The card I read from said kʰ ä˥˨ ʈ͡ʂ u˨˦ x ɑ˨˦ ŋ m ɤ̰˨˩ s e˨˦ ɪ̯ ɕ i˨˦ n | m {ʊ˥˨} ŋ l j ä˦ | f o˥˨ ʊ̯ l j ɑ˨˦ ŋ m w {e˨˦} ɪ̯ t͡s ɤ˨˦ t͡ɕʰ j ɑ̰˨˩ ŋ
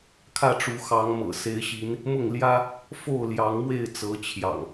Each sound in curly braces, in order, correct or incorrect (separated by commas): correct, incorrect